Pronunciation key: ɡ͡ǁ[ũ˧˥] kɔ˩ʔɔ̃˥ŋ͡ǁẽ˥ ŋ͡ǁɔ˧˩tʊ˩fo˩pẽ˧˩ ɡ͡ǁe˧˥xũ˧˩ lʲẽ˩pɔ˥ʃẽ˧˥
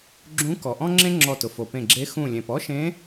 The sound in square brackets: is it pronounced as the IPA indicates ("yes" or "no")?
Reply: yes